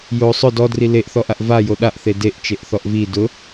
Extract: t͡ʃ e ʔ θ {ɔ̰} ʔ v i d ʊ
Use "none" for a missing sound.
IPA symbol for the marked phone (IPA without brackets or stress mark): ɔ